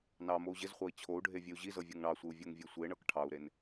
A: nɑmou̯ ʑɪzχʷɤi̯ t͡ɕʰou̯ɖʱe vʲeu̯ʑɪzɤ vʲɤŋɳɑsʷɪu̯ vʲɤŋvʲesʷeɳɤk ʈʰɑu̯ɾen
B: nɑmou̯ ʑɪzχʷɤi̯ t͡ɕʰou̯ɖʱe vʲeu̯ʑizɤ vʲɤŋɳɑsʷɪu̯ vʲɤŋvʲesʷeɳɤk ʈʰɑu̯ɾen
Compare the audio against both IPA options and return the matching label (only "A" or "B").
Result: B